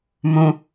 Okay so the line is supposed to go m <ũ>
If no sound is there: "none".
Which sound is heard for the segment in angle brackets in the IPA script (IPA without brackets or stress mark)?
ũ